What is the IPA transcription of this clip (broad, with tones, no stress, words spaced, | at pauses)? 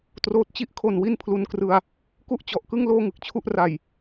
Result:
troː˦˥t̚ t͡ɕi˦˥ʔkʰo˨˩n wi˥˩npʰlu˧nkrɯ˧a̯ | ku˥˩ʔt͡ɕɔ˨˩ʔkɯ˥˩ŋ loː˥˩ŋɯ˨˩k̚t͡ɕʰu˥˩ʔ ra˨˩j